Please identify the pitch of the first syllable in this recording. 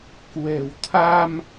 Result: low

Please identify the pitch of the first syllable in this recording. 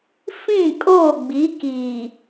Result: falling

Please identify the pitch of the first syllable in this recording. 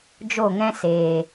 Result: falling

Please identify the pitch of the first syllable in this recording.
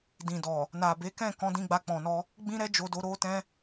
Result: low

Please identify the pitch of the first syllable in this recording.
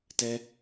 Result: high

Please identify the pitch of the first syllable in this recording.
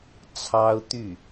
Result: high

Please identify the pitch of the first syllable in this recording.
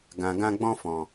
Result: low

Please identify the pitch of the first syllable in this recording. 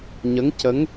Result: rising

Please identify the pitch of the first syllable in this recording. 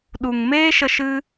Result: low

